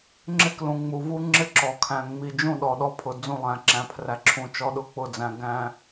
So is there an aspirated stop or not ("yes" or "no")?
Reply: yes